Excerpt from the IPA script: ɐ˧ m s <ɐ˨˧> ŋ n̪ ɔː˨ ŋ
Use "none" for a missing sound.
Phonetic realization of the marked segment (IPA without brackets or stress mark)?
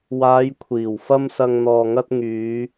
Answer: ɐ˨